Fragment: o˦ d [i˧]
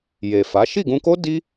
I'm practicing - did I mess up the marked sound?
yes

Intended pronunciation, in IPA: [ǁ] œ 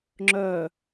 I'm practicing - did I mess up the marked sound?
yes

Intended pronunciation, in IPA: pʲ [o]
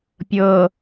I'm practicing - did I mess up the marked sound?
yes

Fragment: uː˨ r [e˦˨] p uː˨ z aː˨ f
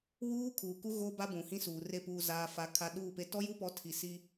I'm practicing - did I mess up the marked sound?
no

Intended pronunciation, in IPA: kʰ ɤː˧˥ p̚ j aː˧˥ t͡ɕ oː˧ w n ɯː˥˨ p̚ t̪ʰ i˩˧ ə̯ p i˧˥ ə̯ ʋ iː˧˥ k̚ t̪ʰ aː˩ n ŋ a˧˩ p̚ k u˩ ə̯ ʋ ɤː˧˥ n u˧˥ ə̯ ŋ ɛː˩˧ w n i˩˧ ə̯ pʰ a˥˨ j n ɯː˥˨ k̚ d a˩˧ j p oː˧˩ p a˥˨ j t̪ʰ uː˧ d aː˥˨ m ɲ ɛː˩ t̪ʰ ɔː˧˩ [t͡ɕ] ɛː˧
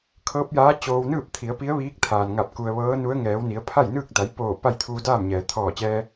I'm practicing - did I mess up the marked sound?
no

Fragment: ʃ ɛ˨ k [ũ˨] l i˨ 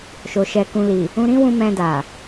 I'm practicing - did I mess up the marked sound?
no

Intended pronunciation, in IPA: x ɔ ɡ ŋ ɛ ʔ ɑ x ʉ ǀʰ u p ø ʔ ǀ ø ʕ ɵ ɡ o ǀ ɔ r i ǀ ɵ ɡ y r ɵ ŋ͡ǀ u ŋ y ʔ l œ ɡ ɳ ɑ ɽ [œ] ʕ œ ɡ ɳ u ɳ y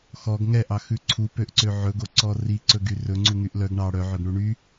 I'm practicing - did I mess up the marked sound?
no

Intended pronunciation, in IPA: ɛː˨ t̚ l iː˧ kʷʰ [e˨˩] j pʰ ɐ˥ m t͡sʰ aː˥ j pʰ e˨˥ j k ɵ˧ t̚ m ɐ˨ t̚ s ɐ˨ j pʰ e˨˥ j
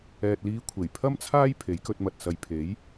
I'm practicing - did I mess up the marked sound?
no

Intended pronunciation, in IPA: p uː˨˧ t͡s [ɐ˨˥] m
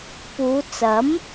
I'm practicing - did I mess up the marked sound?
no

